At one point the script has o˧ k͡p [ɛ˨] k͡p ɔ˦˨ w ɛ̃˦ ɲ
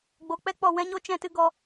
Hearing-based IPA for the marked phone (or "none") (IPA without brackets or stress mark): ɛ˦